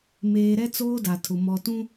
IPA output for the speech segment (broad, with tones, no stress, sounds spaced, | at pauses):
m eː˨ ɾ ɛ˦ t͡s oː˦ d a˨ tʰ ʊ˨ m ɔ˨ t ũ˦